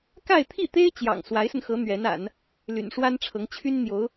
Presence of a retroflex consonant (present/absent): present